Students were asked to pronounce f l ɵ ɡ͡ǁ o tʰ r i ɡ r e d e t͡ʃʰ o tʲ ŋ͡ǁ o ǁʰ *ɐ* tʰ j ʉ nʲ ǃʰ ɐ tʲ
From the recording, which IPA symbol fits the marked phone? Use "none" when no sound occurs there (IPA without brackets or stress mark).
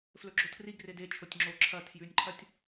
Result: ɐ